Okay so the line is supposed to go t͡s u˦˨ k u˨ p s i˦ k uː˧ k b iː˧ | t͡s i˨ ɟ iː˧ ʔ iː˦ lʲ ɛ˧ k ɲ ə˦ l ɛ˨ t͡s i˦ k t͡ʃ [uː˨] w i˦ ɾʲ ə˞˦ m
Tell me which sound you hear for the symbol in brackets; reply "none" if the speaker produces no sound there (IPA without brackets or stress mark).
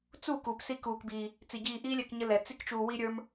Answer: uː˧